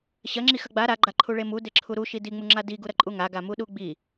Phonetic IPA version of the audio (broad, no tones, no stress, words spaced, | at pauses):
ɕɐŋ͡ǁi xɐɡ͡ba ɾaɡ͡ǃa ǃʰuɭemu deǁʰuɾu ʃidiŋ͡muŋ͡ǁa diɡuɾɐǃʼu ŋaɡamu ɗuɡ͡bi